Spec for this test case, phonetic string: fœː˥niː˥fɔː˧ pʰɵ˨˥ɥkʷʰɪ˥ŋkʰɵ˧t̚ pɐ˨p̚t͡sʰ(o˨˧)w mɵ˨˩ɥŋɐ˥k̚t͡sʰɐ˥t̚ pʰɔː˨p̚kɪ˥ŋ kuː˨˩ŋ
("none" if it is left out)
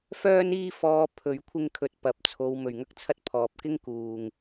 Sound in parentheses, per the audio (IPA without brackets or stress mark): o˨˧